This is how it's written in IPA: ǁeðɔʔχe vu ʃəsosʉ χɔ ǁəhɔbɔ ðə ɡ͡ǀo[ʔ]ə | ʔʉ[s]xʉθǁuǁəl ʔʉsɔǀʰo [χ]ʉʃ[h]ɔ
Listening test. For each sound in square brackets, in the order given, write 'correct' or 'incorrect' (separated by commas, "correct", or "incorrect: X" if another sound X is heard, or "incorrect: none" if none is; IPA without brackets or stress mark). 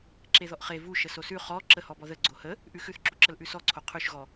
incorrect: h, incorrect: none, incorrect: qʰ, incorrect: ɣ